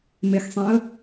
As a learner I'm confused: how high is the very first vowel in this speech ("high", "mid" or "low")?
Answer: mid